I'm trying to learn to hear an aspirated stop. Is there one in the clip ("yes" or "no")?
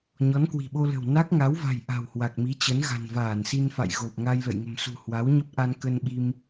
no